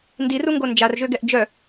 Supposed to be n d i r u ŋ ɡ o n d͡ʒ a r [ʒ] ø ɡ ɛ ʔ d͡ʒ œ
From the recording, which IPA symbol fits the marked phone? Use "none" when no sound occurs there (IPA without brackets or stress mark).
ʒ